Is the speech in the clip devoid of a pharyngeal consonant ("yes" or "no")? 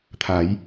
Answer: yes